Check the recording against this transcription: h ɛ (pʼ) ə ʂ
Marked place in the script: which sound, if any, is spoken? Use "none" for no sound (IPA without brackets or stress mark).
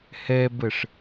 b